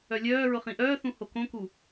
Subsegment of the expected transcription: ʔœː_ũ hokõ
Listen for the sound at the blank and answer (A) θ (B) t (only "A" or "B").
A